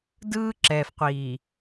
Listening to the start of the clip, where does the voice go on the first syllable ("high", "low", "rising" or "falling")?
high